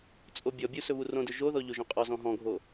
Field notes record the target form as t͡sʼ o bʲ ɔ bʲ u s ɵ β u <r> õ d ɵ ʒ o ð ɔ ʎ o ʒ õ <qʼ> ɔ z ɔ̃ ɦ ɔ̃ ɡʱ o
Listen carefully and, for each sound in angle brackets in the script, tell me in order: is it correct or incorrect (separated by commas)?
correct, correct